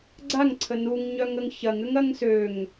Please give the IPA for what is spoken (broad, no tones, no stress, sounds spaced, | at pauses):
ɡ͡ǀ a ŋ ǀʰ ə n u ŋ ɲ œ ŋ ə ŋ ç ɐ ŋ ʏ ŋ ɐ ŋ s ø ŋ